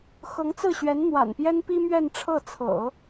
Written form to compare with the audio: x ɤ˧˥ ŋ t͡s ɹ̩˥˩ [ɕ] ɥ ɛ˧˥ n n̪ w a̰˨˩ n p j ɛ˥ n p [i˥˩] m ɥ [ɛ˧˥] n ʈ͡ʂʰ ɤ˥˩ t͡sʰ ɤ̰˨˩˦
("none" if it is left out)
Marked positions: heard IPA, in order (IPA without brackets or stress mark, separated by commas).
ɕ, i˥, ɛ˥˧